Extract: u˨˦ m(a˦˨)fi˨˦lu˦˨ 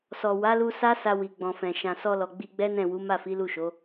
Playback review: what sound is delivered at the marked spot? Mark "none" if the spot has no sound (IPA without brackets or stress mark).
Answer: a˦˨